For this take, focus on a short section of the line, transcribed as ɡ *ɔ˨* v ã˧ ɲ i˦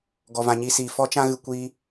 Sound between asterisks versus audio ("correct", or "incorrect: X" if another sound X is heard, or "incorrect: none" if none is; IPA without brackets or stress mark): incorrect: ɔ˧